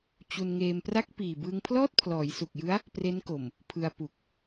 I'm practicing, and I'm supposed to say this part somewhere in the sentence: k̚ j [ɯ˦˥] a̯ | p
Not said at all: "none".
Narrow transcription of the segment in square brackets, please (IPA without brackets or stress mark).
ɯ˦˥